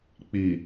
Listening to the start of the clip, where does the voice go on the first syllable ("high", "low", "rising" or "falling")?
low